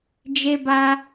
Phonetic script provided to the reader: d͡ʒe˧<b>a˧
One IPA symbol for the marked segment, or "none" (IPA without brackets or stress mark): b